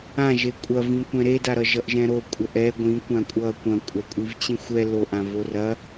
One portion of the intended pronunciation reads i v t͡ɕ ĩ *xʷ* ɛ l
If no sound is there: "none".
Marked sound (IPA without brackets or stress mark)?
xʷ